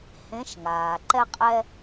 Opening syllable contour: rising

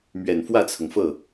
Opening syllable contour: low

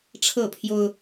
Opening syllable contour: falling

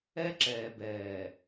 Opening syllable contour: high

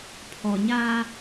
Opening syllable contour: low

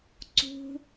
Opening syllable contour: high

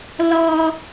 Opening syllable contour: high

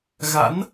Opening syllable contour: rising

